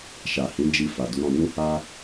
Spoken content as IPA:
ʃ a˨ h ĩ˨˦ d͡ʒ i˧ f a˨ d u˨˦ ɾ ɔ̃˧ n ũ˦ h a˦

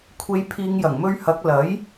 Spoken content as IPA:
kʷʰ e˨˧ j pʰ iː˨˧ ŋ j ɐ˨˩ ŋ m ɵ˧ ɥ h ɐ˨˥ k̚ l ɐ˨˥ j

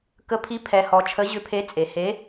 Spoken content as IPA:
k ə˧˥ pʰ i˧˥ pʰ ɛ˨ h ɔ˨ t͡ʃʰ ə˧˥ ʑ ʏ˧˥ pʰ e˧˥ t͡sʼ e˨ h e˧˥

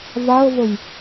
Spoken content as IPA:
v a ə̯ v ə j

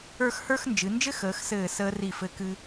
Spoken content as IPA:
ə˞˥˧ x h ə˞˥ x n d͡ʒ ɨ˩˧ n d͡ʒ ɘ˥ x əː˩˧ x s ɘː˧˩ s əː˧ r i˧˩ f ɘ˧ k ɨ˧

